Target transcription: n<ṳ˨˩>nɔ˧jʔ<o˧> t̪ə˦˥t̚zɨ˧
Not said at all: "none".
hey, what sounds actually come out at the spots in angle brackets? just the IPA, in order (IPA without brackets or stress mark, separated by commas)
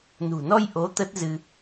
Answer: ṳ˨˩, o˨˦